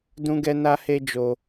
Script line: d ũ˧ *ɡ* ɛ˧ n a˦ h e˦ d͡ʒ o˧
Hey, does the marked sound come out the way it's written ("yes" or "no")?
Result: yes